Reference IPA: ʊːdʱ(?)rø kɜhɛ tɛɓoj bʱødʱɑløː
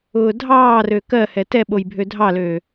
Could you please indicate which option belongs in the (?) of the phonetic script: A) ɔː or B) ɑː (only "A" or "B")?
B